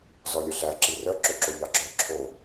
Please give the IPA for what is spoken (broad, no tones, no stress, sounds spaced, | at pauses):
z ɔ lʲ œ ɬ æ ǁ i r œ ǁ ɵ ǁ o ʎ ɑ ɡ͡ǁ œ ǁʰ o